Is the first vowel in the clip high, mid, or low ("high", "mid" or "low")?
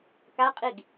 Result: low